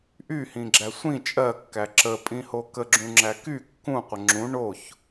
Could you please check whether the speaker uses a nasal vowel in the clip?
yes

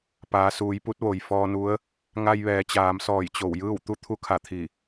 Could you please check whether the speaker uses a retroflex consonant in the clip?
no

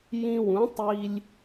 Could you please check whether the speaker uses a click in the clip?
no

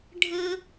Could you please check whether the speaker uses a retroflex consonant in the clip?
yes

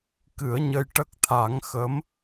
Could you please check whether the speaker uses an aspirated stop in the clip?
yes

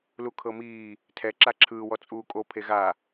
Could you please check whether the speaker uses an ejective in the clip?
yes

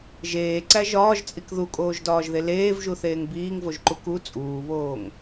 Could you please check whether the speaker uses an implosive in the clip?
no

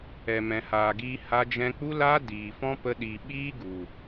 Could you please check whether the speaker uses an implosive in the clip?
yes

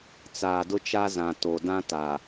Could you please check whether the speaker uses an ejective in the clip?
no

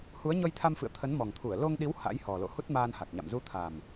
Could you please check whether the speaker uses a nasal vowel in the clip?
no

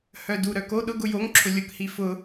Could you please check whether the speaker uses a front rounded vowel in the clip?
yes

